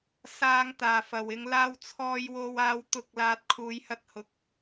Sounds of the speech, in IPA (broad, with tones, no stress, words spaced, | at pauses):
saː˨ŋ t̪aː˨˩fɐ˨˩wɪ˨˧ŋ laː˧wt͡sʰɔː˧jwo˧waː˧w t̪ʊ˨˥k̚ laː˨t̚kʰuː˨˧j hɐ˧t̚hʊ˨k̚